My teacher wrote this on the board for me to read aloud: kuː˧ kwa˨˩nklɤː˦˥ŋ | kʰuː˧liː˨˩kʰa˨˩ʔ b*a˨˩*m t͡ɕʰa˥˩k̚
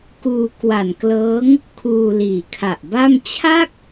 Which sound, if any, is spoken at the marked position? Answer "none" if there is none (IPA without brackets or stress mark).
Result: a˥˩